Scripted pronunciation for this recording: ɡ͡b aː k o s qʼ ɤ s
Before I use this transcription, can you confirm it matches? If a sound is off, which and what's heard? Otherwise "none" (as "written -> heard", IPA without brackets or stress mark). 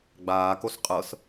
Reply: none